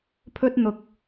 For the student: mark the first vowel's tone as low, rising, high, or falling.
high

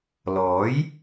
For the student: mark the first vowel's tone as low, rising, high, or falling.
rising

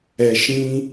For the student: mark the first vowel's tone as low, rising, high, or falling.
low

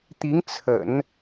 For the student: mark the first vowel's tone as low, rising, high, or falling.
rising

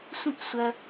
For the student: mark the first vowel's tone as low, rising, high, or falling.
high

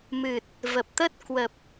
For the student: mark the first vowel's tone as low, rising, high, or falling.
low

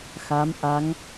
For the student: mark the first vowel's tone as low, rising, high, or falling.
rising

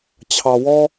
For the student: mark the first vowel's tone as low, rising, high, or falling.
low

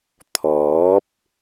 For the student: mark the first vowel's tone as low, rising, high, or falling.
rising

